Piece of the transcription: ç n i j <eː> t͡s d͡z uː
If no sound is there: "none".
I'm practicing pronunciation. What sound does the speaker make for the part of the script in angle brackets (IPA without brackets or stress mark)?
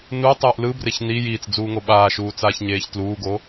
iː